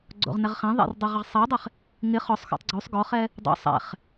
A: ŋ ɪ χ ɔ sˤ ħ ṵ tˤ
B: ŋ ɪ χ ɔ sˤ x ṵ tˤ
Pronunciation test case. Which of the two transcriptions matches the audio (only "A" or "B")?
B